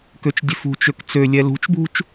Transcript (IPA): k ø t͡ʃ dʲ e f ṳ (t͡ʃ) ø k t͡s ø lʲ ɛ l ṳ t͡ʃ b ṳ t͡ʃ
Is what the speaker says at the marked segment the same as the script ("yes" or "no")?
yes